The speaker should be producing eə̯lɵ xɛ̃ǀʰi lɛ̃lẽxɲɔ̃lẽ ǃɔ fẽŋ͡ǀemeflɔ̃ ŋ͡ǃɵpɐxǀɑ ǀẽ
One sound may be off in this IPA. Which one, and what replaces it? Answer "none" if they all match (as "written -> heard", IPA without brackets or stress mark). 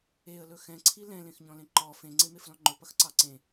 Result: none